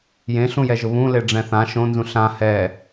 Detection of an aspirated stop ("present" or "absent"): absent